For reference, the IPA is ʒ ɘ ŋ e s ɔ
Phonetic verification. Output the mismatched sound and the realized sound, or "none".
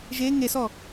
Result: ɘ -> e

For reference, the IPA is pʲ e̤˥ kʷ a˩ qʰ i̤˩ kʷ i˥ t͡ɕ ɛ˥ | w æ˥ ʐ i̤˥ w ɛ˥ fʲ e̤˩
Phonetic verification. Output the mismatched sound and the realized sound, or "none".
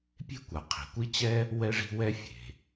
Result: æ˥ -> ɛ˥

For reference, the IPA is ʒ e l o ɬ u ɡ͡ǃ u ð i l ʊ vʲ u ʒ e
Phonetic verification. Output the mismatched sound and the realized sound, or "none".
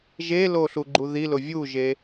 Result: none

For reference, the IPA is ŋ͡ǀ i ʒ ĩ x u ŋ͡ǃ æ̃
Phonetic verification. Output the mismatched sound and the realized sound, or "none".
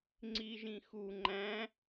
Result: none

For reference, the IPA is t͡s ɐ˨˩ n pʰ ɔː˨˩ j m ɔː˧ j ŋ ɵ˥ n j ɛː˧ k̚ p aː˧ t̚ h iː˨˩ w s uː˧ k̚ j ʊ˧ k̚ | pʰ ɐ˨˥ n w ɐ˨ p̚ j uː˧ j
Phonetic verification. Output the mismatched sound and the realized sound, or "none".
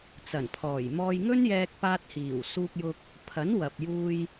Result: none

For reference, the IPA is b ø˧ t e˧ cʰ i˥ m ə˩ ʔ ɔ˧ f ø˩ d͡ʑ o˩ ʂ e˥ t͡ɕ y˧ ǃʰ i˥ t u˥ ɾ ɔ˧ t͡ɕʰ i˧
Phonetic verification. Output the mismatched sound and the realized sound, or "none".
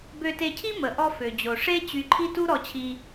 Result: none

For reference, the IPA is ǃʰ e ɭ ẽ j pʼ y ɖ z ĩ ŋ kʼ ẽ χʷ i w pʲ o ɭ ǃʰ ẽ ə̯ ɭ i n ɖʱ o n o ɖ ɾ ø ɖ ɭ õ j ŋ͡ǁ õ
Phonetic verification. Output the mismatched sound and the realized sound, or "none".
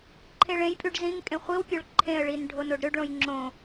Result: none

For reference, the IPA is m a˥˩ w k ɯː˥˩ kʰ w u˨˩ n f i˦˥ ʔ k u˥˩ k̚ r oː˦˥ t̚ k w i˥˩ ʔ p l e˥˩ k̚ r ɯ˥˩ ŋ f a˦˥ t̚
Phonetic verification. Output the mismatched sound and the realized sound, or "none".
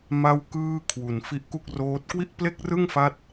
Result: none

